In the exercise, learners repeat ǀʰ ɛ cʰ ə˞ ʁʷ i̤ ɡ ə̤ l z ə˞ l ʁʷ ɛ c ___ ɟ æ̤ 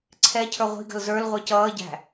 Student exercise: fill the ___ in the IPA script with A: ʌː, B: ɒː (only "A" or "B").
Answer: A